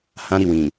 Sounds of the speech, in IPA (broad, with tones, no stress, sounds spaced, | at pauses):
h ã˦ ɾ i˦˨ w ĩ˨